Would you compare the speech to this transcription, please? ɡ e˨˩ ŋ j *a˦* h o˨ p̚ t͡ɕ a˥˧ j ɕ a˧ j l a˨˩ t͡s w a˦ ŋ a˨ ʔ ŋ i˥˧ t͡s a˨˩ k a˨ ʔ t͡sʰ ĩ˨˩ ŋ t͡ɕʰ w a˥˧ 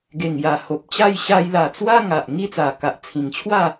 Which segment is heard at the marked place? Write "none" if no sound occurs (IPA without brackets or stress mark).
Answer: a˨˩